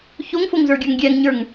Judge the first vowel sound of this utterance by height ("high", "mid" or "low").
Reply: mid